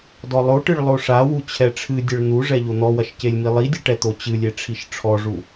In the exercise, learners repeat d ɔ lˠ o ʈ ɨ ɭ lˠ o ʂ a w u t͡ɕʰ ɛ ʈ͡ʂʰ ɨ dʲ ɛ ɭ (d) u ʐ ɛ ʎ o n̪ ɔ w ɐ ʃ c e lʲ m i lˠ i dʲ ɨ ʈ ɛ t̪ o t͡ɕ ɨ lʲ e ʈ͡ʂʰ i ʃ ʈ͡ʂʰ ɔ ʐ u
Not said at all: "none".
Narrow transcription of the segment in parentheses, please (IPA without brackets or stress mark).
n̪